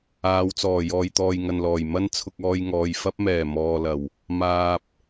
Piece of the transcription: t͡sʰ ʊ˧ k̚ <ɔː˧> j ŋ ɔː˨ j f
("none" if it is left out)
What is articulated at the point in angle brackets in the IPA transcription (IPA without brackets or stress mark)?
ɔː˧